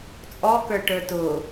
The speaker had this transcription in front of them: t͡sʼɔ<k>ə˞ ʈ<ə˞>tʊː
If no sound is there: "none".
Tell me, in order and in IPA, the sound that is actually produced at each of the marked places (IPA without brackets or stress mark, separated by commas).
k, ə˞